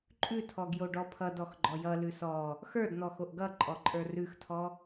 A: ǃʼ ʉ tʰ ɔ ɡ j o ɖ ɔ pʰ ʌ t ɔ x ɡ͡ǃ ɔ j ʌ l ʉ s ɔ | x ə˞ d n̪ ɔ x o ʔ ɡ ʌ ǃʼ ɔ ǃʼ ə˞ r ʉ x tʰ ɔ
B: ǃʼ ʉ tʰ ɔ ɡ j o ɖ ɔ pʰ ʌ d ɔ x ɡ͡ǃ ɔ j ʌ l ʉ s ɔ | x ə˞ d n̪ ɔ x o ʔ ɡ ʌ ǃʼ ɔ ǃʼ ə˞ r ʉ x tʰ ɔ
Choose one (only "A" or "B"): B